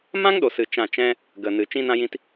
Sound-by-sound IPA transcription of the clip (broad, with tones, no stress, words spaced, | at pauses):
mã˦ŋɗo˨sɨ˨ t͡ʃã˦˨t͡ʃɛ̃˦ | ɡə˨ nɨ˨ t͡ʃĩ˦nã˦jĩ˦t